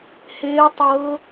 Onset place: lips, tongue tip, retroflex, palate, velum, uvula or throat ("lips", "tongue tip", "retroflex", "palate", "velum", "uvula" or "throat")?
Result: throat